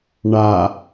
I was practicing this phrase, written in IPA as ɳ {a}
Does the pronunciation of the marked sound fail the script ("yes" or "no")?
no